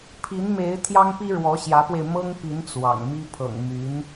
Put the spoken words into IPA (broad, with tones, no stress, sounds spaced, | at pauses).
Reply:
pʰ i˧˥ n m e˧˥ ɪ̯ t̪ʰ j ɑ˥ ŋ p i˥ ɻ w ɔ˧˥ ɕ j ä˧˥ p w e˧ ɪ̯ m ɤ˥ ŋ p i˧˥ n t͡s w ɑ̰˨˩ ŋ m i˥ pʰ ɤ̰˨˩ ŋ m y˧˥ n